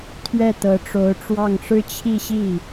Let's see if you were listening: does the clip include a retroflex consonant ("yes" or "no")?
yes